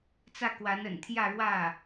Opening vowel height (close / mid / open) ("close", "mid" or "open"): open